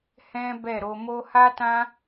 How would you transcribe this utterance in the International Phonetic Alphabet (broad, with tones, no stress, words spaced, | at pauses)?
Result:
hɛ̃˦bɛ˦˨ɾo˧mo˦ ha˦tã˦